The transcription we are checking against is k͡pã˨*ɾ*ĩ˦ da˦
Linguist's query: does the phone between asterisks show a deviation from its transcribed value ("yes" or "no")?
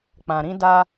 no